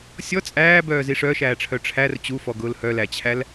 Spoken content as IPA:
sʲ ɔ t͡sʼ æː b œː z i ʂ œː ʃ æː ʈ͡ʂʰ œ ʈ͡ʂʰ æ r t͡ɕ u f ɔ ɡ ʊː l h œ l æ t͡ɕʰ æ l

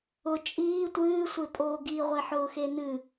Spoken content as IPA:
ʊ t͡ʃʼ iː tʷ ɨː sʷ e pʼ oː ɡ i ʁʷ e ħ ʊː x e n ɨ

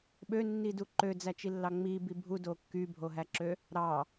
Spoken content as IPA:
ɓ ø nː i d u ǃ ø d͡z æ t͡ʃ i lː ɑ ŋ͡m i b i bʱ u d o kː y bʱ o ɦ æ ǁ ø | ɾ ɑ

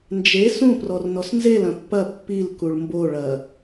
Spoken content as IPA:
n d͡ʒ e s ũ p r ɔ r n ɔ s n z e l ɐ̃ pː ɐ pː i l k u ɭ m b o ɭ ɐ

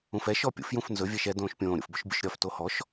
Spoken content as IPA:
ũ f ɛ ʃ ɔ pʲ ṵ f j ũ f n z ɵ vʲ ɛ ʃ ɛ d õː ʃ pʲ õː ɾʲ ṵ f b ɵ ʃ bʲ ṵ ʃ ɾʲ ɒ f t o h ɔ ʃ

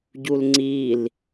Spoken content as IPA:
ɟ u l ŋ͡ǀ i l

